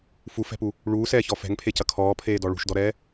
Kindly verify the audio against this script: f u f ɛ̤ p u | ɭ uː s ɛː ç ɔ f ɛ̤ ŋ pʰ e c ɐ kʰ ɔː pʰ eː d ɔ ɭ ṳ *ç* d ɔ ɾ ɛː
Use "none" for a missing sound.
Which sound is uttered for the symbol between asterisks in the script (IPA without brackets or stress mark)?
ʃ